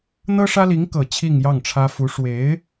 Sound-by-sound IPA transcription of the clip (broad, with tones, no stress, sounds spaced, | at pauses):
n̪ ɤ˥ ʂ ä˥ l i˧˥ ŋ k ɤ˨˩ t͡ɕʰ i˥˧ ŋ j ɑ˥˩ ŋ ʈ͡ʂʰ ä˥ f u˧˥ ʂ w e˧˥ ɪ̯